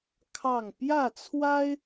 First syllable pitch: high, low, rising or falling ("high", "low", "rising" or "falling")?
falling